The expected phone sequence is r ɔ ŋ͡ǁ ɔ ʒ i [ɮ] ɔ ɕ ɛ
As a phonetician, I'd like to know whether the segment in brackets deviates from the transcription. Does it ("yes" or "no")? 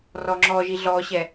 no